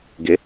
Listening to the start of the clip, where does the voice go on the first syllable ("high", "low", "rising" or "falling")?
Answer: rising